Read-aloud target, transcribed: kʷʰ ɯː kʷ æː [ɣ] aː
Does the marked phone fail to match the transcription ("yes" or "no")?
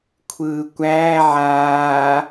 yes